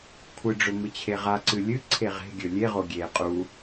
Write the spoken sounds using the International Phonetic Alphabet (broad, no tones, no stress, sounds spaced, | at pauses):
kʷʰ ɨ ɖ͡ʐ ɵ m ɨ t͡ɕʰ e ʁ a ǀ ɨ lʲ ɨ ǀʰ e ʁ e̤ ɡʲ ɵ lʲ e ʁ o ɡʲ e qʼ u